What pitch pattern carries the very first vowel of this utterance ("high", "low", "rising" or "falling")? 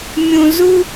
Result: low